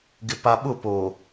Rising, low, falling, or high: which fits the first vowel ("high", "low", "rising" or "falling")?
low